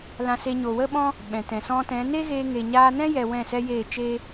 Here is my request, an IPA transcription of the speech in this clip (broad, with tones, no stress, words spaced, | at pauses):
lã˧se˧ ɲo˨wə˦ɓɔ̃˦ | ɓɛ̃˨tɛ̃˨ sɔ̃˧tɛ̃˨˦ neː˦ɣeː˧ŋe˨ɲaː˧ nɛ̃˦jɛ˨ wɛ̃˦˨ sɛ˦jeː˦˨t͡ʃeː˦